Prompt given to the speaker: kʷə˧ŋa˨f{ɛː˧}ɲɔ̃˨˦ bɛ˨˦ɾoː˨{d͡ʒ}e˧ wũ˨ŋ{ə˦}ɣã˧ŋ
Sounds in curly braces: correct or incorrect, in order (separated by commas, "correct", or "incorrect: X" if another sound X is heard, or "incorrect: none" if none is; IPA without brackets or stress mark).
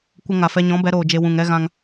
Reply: incorrect: ɛ˧, correct, incorrect: ɛ˦